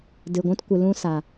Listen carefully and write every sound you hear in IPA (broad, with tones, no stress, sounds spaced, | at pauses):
d ɨ˨ ɡʷ ũ˦ t kʷ ɨ˨ l ũ˦ s a˨